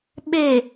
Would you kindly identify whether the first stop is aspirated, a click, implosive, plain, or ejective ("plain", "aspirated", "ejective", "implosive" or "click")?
implosive